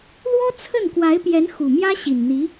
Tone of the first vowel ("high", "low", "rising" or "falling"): high